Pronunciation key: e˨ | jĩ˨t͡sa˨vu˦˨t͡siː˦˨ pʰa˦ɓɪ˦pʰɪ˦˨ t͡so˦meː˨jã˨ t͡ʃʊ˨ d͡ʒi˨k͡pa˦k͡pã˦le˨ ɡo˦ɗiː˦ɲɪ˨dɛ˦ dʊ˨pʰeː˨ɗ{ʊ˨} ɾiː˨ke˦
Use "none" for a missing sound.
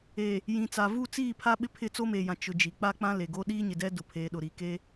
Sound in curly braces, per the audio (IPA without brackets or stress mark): ʊ˨